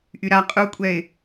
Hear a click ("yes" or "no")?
no